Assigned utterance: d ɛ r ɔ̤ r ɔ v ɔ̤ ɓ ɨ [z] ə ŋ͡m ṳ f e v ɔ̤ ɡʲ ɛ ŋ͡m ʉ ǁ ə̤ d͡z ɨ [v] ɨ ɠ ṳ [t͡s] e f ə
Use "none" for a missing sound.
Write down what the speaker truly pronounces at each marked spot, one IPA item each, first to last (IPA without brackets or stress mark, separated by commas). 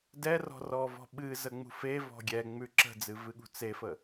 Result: z, v, t͡s